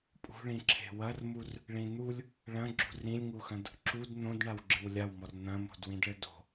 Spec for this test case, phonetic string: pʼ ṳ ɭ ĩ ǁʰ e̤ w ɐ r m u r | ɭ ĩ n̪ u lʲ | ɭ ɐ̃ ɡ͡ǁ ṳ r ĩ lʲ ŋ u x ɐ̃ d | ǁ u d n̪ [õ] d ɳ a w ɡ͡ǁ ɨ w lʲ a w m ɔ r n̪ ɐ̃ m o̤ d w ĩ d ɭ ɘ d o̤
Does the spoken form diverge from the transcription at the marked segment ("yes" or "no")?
no